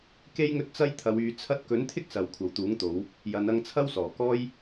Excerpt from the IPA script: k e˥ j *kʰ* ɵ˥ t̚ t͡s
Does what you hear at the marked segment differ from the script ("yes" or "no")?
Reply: yes